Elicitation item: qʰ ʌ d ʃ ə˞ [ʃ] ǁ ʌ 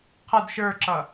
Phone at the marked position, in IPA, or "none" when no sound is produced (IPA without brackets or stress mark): none